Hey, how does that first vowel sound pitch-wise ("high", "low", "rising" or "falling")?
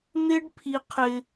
high